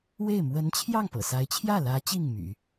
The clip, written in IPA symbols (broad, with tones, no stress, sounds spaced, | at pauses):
w e˥˩ ɪ̯ m w ə˧˥ n t͡ɕʰ j ɑ˥˩ ŋ p ɤ̰˨˩ s a˧˥ ɪ̯ t͡ɕʰ j ä˥˩ l ä˧˥ t͡ɕ i˥˩ ŋ m y̰˨˩˦